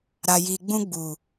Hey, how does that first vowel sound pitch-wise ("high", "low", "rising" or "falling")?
low